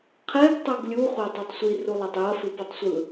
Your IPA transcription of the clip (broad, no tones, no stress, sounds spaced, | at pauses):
qʰ ɛ ɡ tˤ o ɡ lʲ u χʷ a tˤ e tˤ sʷ i r u lˠ a tˤ j ʌ f ɯ p ʌ tˤ sʷ ɯ